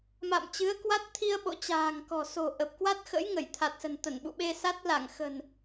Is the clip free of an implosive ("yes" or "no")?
no